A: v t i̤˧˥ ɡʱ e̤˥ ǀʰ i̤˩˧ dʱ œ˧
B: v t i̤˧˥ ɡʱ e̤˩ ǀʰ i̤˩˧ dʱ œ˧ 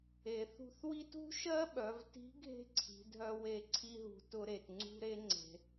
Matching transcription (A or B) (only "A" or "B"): A